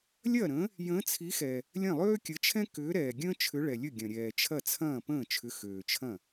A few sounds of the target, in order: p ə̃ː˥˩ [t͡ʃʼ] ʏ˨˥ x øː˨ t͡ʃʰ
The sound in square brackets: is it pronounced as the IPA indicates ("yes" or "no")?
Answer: no